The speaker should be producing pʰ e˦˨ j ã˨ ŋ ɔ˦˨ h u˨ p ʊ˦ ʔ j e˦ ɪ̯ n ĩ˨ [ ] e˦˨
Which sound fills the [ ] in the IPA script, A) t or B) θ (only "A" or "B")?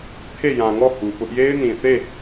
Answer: B